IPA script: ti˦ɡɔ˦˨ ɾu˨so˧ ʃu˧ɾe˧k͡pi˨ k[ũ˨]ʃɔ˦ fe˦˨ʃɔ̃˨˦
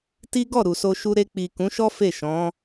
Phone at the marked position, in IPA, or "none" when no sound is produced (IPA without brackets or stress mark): ũ˨˦